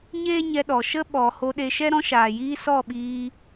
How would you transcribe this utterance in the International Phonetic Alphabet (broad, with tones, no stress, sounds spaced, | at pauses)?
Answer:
ɲ eː˦ ɲ ɛ˧ ɗ ɔ˨ ʃ ə˦ ɓ ɔ˨ h o˧ ɗ e˧ ʃ ɛ˦ ɾ ɔ̃˦ ʃ aː˨ j iː˦ s ɔ˦˨ ɓ iː˧